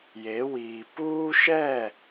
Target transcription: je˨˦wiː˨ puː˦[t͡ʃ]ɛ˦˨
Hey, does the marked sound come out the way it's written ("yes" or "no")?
no